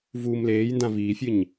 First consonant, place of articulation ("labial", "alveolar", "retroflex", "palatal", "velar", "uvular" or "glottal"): labial